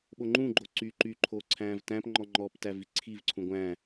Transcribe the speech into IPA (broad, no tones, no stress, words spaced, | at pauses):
ɓoŋ͡ǃũɡ͡ǃo ǀy ǃyǃʰoː ǀʰæ̃ːvtæ̃pŋ͡ǃɔ ŋ͡ǃɔptæ viǀʰivǀʰũ ɡʷæ̃ː